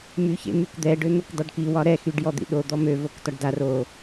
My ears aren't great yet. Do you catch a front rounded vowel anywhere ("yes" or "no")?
yes